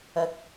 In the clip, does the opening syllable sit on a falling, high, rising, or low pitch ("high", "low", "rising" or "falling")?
rising